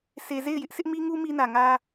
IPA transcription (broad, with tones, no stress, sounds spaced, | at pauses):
sʰ e˨ z e˦˨ ɪ̯ j ɪ˦ ʔ sʰ ɪ˦ ʔ m i˦ ŋ u˦ m i˦ n ä˨ ŋ ä˦